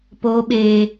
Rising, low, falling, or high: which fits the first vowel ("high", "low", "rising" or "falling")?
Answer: high